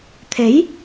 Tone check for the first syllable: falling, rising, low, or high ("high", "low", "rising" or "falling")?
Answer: rising